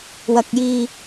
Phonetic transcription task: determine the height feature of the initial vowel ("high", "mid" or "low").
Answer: low